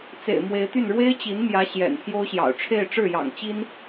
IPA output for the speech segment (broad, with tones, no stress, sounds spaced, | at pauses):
t͡s ḛ˨˩ ɪ̯ m w e˧˥ ɪ̯ t̪ y˥˩ n ɻ w e˥ ɪ̯ t͡ɕ i˧˥ n m j ä˧˥ ɕ j ɛ̰˨˩ n pʰ j o˥ ʊ̯ ɕ j ɑ̰˨˩ ʊ̯ ʈ͡ʂʰ e˥˧ ɪ̯ ʈ͡ʂ ɻ̩˥˩ j ɑ̰˨˩ ŋ t͡ɕ i˥ n